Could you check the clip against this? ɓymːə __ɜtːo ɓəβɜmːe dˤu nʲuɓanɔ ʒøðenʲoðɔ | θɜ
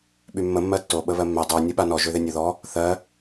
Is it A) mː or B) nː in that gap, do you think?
A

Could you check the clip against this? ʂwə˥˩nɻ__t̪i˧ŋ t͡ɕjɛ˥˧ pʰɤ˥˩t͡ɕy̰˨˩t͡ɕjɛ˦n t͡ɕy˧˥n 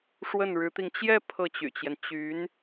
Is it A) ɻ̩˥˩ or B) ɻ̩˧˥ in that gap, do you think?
B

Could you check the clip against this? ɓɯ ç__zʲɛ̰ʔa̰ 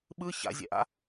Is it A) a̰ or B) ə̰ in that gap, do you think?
A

